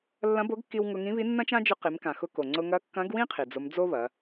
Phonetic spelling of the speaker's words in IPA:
lː ɐ̃˧˥ b o˧˥ ɡ kː i˧ w ŋ ʊ˧ ŋ ĩ˧˥ β i˧˥ nː ɐ̃˥ t͡ʃ ã˥ d͡ʒ ʊ˧˥ q i˩˧ m k ã˩ x ʊ˧ k o˩ ŋ͡ǀ ʊ˧ ŋ ɐ˧˥ kː ɐ̃˧˥ ɡ w ĩ˥ qʰ i˩ d͡z ʊ˧˥ m d͡z o˥ β ɐ˩˧

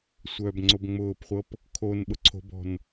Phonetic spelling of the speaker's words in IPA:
sʷ œː b ŋ͡ǀ o b ŋ͡m ʊː p χʷ ɤ p | kʰ o n ɓ ʊ ǀʰ o̤ b ɔ̤ n

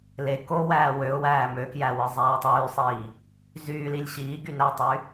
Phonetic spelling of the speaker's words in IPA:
l e k o w æː w ø ʊ̯ w æː m ø k j æ w ɯ zˤ æː tˤ yː sˤ iː | z yː l i lʲ ɕ iː ɡ y n æ tˤ y

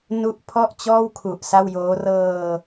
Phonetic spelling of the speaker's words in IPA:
n u˦˥ ʔ pʰ ɔ˥˩ ʔ t͡ɕ ɔː˥˩ w kʰ u˨˩ ʔ s a˥˩ w j oː˦˥ r ɤː˧

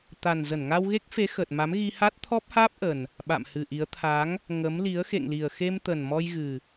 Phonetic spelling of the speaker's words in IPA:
t̪ a˨˩ n z ə˧˩ n ŋ a˧ w ɣ e˦˥ k̚ f e˨˦ x ə˨˩ t̚ m a˨˦ m ɣ i˧ h a˦˥ t̚ t̪ʰ ɔ˦˥ p̚ h aː˦˥ p̚ ʔ ə˨˩ n | ɓ a̰˧˨ m h ɨ˨˩ ʔ i˨˦ ə̯ t̪ʰ a˨˦ ŋ | ŋ ə˨˦ m l i˨˦ ə̯ x ḛ˧˨ ŋ l i˨˩ ə̯ x e˧ m t̪ ə˨˩ n m ɔ˧ j ɣ ɨ˨˩

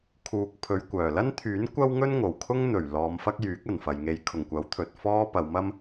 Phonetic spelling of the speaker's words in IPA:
kʰ uː˨ k̚ pʰ ɵ˨˧ ɥ kʷ œː˨˩ l ɐ˥ n t̪ʰ yː˨˥ n kʷ ɐ˥ w ŋ ɵ˥ n ŋ o˨˩ w kʰ ʊ˥ ŋ n̪ ɵ˨˩ ɥ l ɔː˨˧ m f ɐ˥ k̚ j yː˨˥ k̚ ɐ˨˩ n f ɐ˨ j ŋ e˧ j kʰ ʊ˨˩ ŋ kʷ ɐ˨˥ w t̪ʰ ɵ˨ t̚ f ɔː˥ p ɐ˨˧ w m ɐ˥ m

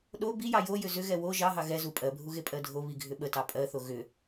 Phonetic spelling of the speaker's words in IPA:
ɗ o b i j ɑ j o j ʏ z ʏ ɣ ɛ w o ʒ ɑ ɦ ɑ ɣ ɛ z u pʼ ɜ bʱ u ɣ e pʼ ɜ dʱ o β i ɡʱ ʏ ɓ ə t ɑ pʼ ɜ θ o ɣ ʏ

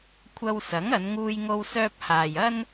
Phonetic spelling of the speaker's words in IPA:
kʷʰ ɐ˧ w s ɐ˨˥ ŋ ɐ˨˧ n ŋ uː˧ j ŋ o˥ w s œː˥ p̚ h aː˨ j ɐ˥ n

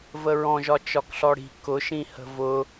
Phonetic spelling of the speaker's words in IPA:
v ə ɹ ɔ̃ ʒ ɒ t͡ʃ ɒ k ɬ ɔ ɽ i̤ k ʊ ʃ ĩ h ə̤ v ʊ

